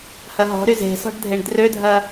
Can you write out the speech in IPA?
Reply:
hɐɦɔ̤ɾy ze̤sɔ̤ɖ dʱeɳdrødʱɐ

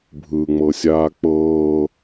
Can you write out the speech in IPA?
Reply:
bʱɯŋ͡mɤsʲaː k͡pɤː

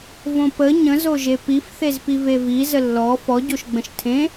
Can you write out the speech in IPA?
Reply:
võpə ɲə̃zoʒe pifθezpi vevi zəlːɔ fɔɟoʃɡ͡bə̃ʃ tʰẽ

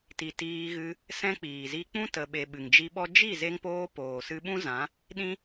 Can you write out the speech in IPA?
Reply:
ti˨ tiː˧ɣɨ˧ | sɛ̃˦k͡piː˨ zi˧k͡pũ˦ tə˨ɓe˨ ɓɨ˨ŋd͡ʒi˧ɓɔ˦ d͡ʒi˦˨ze˧ŋpoː˧ poː˨sɨ˧ɓũ˦zã˨˦ | ɗĩ˦

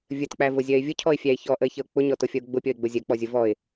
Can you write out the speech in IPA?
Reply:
vʲətk͡pævʊzʲɜɪ̯ vʲʊcʰɔɪ̯fʲæɪ̯ çɔʔəɪ̯çəʊ̯ k͡pʊɲɔtʊfʲʌʊ̯ ɡ͡bʊpʲɔɪ̯ɡ͡bʊ zʲɜk͡pɔzʲʊ vɔɪ̯

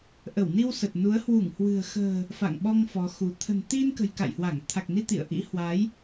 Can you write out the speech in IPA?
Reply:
ʔə˧˩wni˧w sə˨˩t̚nu˨˦ə̯ hwu˧˩ŋhwɨ̤˨˩ə̯xə̤ː˨˩ | fa̰˧˨ŋɓɔ˧ŋ fɔ˨˦xu˨˦ t̪ʰə̤˨˩nt̪i˧nkə̤˨˩j ka̰˧˨jhwa˧˩ŋ t̪ʰa˨˩k̚ni˧ t̪ḭ˧˨ə̯ʔḭ˧˥hwa˨˦j

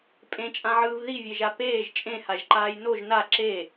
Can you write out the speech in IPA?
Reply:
pʼẽt͡ʃʼãʕɯːv ðivʲeʒa peːʒ t͡ʃʼẽhaʒǃaːj noʒ na ǁe

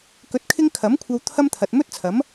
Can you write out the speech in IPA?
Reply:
kɵ˧t̚kʰɪ˥ŋ kʰɐ˨˥mkʷʰɐ˧w t̪ʰɐ˥mt̪ʰɐ˨t̚ mɵ˥t̚t͡sʰɐ˨˥m

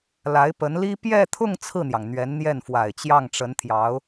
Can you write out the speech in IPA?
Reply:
la˧˥ɪ̯pə˧˥nli˥ pjɛ˥˧t̪ʰʊ˥˧ŋ t͡sʰɹ̩˥˩n̪jɑ˩ŋ n̪ɥɛ˧˥nn̪jɛ˥˩nfwa˨˩ɪ̯ t͡ɕjɑ˥˩ŋʈ͡ʂə˧˥nt̪ʰjɑ˧˥ʊ̯

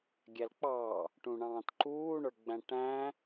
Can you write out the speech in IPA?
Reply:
ɡʲælk͡pɑ | ʈũɳɑ̃ːtǃuː ɳə˞ɡ͡bæ̃ʈæ̃

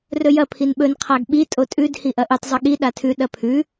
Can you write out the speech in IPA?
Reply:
rɵjɐ pʰinɓɵn qʰaɡɓi tʼotʼʉd hiʔɐʔɨtˤ zˤɵɠi ɗatʰʉ ɗɐpʰʉ

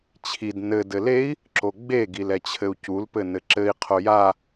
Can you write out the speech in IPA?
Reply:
t͡ɕʰid nɘ dɘlei̯ | ǁoɡ͡be ɡilɛt͡ɕʰɘu̯cul pɘnɘǁɘi̯ qʰoja

